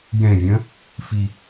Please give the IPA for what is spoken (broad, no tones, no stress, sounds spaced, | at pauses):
j ɛ̃ vʲ ɐ̃ | f i